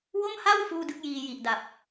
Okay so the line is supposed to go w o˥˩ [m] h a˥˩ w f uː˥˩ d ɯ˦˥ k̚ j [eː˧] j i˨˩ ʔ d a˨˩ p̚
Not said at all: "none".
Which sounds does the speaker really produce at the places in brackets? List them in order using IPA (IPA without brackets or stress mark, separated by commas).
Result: m, iː˧